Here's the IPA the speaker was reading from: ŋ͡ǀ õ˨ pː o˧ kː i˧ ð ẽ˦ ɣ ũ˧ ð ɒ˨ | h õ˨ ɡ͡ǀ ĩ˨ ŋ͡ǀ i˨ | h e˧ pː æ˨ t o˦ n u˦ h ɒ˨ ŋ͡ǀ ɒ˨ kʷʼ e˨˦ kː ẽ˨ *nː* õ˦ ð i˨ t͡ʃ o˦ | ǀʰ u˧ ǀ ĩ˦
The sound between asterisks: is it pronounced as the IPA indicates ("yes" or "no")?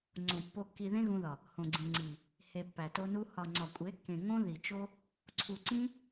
no